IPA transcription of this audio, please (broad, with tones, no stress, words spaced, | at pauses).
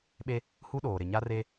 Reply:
ɓe˦ | hu˦ɗoː˨ ɾɪ˨ɲa˦ re˦